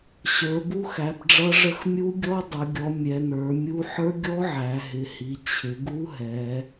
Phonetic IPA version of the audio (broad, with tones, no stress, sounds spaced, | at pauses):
ɕ ə˞˩˧ b u˦˥ x æ˩˧ b ɖ͡ʐ ʌ˦˥ ʐ ə˦˥ x mʲ u˦˥ ɡʲ ɔ˦˥ dˤ ʌ˩˧ ɡʲ ɔ˩˧ mʲ ɛ˩˧ n̪ ə˞˩˧ mʲ u˦˥ ħ ə˞˦˥ ɡʲ ɔ˦˥ ʕ æ˩˧ ɦ ɪ˩˧ h i˩˧ t͡ɕʰ ɪ˩˧ ɡ u˦˥ ɦ ɛ˩˧